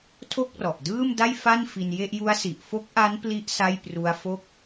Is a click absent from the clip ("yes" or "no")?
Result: yes